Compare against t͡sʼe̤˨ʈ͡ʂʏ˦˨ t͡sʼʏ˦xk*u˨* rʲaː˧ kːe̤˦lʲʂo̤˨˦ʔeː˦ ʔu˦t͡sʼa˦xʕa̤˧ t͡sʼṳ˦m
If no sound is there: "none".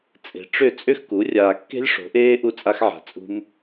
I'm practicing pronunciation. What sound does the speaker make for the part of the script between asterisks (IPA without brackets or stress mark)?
u˨˦